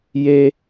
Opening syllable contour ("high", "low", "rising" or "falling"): high